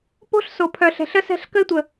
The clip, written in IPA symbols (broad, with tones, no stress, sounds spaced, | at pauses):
p o̤˦ ɬ s o˨ pʰ œ˨ ɬ ɛ̤˨ ɬ ə˦ s ɛ̤˦˨ ɬ k ə˦ ɪ̯ tʷ ə˨